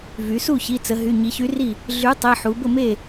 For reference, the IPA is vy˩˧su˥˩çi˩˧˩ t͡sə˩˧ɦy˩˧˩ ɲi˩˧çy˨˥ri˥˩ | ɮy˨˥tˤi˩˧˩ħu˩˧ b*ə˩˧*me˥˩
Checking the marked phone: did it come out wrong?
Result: yes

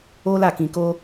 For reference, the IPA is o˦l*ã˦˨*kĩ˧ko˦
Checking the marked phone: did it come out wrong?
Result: yes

